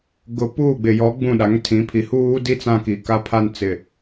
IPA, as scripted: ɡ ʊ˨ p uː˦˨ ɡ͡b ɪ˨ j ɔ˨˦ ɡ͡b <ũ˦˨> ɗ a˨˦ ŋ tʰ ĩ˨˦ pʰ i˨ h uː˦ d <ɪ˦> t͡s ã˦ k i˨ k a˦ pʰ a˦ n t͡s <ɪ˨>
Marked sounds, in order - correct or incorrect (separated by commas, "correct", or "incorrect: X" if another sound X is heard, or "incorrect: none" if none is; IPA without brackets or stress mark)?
correct, incorrect: i˦, correct